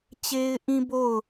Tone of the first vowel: high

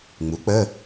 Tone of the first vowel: rising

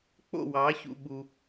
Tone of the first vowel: falling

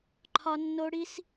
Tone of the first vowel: high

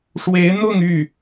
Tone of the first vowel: rising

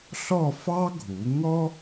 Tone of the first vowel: falling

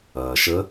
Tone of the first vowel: low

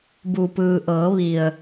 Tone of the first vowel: low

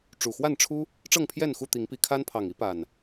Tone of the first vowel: low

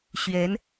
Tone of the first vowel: rising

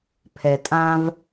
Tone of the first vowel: low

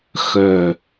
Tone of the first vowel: low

